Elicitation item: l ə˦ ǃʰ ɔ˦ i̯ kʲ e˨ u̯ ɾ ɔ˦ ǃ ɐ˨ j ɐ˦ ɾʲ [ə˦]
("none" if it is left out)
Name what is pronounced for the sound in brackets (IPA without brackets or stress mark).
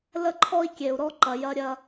ɐ˦